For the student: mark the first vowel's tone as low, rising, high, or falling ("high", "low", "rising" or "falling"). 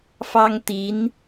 high